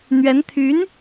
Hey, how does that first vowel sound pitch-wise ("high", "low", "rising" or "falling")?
rising